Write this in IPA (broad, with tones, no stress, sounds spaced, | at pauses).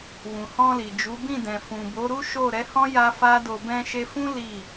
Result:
w ũ˨ h ɔ̃˧ l i˨ d͡ʒ u˨˦ b ĩ˦˨ d ɛ̃˨ f ũ˨ b o˨˦ ɾ u˦ ʃ o˦˨ ɾ ɛ˨˦ h ɔ̃˦ j a˧ f a˦ d o˧ b ɛ̃˧ ʃ e˧ f ũ˦ l i˦˨